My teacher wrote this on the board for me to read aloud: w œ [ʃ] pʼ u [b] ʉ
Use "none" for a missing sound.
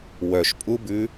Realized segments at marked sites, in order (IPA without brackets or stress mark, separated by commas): ʃ, b